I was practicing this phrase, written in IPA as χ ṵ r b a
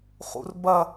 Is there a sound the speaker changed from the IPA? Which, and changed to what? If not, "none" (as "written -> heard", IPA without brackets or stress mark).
a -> ɐ